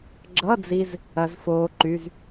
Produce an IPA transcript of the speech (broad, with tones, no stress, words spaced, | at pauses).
ɡ͡ǁʌ˧˥˧d͡zi˧z | ɐ˦˥zfoː˦˥ǃy˧˥˧z